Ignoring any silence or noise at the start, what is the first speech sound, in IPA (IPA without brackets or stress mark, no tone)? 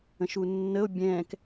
ə̃